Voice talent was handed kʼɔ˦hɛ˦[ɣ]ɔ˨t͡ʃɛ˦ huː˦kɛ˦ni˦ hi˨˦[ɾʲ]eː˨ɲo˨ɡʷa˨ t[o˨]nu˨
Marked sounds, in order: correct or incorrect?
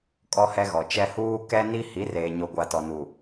correct, incorrect: r, incorrect: ɔ˨

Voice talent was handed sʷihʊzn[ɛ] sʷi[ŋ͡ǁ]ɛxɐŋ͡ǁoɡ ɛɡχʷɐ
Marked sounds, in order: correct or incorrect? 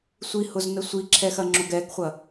incorrect: ə, incorrect: ǁʰ

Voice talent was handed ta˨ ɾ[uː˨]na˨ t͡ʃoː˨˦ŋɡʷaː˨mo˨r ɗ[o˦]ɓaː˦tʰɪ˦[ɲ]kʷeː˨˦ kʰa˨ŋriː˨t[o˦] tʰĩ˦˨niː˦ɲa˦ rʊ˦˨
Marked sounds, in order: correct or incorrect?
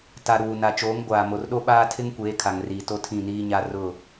correct, correct, incorrect: ŋ, incorrect: o˦˨

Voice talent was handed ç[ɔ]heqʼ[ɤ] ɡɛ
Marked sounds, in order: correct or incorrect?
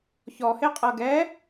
correct, correct

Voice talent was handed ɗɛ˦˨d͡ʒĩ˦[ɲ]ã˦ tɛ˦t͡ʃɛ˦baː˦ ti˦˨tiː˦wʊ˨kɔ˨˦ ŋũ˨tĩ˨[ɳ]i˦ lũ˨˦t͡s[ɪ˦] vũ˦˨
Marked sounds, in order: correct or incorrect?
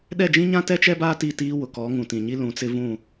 correct, incorrect: ɲ, correct

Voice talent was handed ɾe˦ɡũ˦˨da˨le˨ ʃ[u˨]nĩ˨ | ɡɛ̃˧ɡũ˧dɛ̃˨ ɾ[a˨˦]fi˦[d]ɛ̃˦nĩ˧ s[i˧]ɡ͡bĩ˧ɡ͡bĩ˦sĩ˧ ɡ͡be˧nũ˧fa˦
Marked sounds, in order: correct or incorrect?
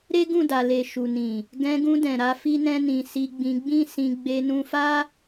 correct, correct, incorrect: n, correct

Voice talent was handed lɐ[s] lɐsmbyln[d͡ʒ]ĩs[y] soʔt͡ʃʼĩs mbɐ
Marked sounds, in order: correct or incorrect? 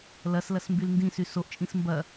correct, incorrect: d, correct

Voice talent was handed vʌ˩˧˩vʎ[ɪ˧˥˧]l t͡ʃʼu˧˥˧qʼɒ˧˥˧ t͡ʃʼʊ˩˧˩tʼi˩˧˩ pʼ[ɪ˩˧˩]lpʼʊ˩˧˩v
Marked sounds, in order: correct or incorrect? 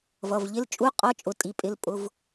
correct, correct

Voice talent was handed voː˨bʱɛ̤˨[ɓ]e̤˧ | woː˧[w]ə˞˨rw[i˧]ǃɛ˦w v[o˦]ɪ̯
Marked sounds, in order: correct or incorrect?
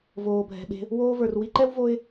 correct, incorrect: v, correct, correct

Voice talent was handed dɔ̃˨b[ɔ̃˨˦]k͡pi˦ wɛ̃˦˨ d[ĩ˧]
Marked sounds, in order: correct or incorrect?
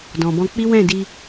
incorrect: ɔ̃˧, incorrect: i˧

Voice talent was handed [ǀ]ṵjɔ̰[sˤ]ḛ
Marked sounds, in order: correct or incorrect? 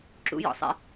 incorrect: ǁ, correct

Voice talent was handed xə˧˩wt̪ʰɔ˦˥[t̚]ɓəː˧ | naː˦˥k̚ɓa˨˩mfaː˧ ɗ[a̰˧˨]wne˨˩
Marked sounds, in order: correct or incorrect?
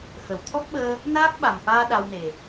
incorrect: k̚, incorrect: a˧

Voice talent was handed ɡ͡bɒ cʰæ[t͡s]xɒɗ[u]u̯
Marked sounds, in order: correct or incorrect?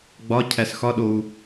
incorrect: s, incorrect: o

